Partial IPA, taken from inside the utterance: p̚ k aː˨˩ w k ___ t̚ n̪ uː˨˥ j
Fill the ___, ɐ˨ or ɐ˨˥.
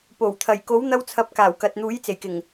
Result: ɐ˨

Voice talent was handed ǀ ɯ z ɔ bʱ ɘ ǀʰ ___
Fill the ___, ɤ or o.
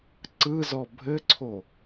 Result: o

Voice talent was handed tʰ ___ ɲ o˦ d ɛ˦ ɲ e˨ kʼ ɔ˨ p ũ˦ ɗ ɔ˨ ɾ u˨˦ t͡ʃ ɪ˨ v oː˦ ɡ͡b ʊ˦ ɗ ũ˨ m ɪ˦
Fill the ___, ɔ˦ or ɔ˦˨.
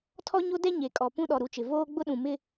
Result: ɔ˦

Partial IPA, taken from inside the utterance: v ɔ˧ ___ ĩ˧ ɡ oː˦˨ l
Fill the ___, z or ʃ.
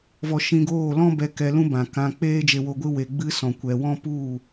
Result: ʃ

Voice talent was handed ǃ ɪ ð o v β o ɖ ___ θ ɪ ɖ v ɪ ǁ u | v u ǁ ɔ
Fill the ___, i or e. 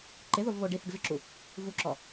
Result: i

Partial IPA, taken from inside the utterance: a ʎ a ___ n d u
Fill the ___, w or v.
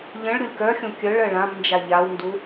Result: w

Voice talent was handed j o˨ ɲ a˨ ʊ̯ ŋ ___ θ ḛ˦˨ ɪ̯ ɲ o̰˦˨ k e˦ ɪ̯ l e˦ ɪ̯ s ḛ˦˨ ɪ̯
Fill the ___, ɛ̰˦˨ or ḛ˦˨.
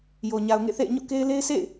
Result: ḛ˦˨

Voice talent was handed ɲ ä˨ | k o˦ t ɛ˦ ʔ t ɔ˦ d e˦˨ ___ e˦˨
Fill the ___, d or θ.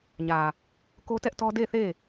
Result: θ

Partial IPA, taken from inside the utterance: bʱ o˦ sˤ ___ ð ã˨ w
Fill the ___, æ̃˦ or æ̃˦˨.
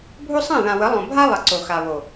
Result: æ̃˦˨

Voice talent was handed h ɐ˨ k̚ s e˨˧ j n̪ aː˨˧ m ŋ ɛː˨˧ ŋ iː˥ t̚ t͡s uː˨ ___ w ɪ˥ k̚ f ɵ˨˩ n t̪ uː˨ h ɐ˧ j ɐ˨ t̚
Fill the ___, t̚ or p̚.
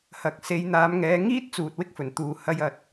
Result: t̚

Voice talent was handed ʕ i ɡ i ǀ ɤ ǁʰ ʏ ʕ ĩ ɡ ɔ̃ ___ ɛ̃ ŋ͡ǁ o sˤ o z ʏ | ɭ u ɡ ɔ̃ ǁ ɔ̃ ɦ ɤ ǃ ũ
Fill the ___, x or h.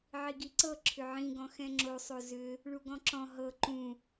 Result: x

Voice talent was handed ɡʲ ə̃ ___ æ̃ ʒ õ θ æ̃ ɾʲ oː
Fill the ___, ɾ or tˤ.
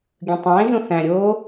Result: tˤ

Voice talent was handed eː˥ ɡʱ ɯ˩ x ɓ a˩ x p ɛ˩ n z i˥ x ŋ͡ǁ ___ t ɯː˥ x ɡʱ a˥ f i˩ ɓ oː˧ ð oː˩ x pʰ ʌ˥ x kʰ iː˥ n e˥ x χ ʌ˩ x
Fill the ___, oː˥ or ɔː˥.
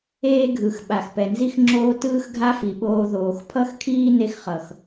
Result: oː˥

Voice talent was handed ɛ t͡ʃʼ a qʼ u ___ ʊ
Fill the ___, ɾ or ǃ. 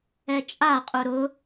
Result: ɾ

